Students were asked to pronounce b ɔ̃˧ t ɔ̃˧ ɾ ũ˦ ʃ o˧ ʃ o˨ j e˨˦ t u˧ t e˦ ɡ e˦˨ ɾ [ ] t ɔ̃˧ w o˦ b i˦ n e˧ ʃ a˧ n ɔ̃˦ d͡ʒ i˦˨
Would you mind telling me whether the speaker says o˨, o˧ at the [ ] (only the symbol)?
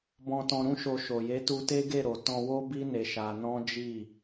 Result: o˨